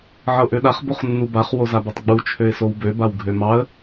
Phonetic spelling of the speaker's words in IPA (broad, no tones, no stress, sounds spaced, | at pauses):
ʕ ɤ ʔ ø ɗ a χ b o χ nː u b a χ w o z a b o tˤ ɡ͡b u t͡ʃʰ ø ɪ̯ s o w b ø b a w ɡʱ ø m ɑ ə̯